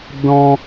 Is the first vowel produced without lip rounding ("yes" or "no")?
no